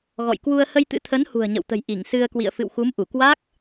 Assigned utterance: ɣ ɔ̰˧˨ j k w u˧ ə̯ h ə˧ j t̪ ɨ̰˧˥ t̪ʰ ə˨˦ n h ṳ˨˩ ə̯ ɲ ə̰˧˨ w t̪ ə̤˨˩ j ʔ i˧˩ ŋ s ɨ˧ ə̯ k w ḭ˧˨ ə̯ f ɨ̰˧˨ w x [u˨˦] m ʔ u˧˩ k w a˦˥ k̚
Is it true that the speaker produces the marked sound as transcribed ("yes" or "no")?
yes